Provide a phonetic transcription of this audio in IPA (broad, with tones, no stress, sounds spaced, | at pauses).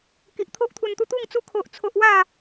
k i˨ ʔ t̪ʰ o˦ ʔ t̪ʰ u˧ n t̪ u˦ t̪ u˥˧ ŋ t͡s u˦ kʰ o˦ ʔ t͡sʰ o˦ ʔ w a˥˧